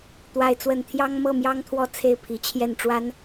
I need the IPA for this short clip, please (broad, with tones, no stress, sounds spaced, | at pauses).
t̪ w a˦ ɪ̯ t͡s w ə˥˨ n t̪ʰ j ɑ˦ ŋ m ɤ˥˨ m j ɑ˦ ŋ t̪ʰ w ɔ˥˨ t͡sʰ e˥˨ ɪ̯ pʰ i˨˦ t͡ɕʰ j ɛ˥˨ n ʈ͡ʂ w a˦ n